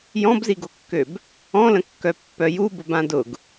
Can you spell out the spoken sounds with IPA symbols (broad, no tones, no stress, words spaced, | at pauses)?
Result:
jɔ̃bziɡokːøb | ɔ̃lə̃kːœpːœ jubʊbã dʊɡ